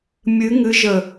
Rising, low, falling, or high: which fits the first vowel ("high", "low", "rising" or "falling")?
rising